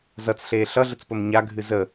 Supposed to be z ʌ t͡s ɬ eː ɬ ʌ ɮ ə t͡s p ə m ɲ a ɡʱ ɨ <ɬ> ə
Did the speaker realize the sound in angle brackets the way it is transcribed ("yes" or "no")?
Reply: no